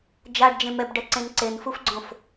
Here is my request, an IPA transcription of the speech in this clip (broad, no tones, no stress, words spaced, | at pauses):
d͡ʒaɖd͡ʒẽ mɛbɖɛǀẽn ǀenfufɡ͡ǀõf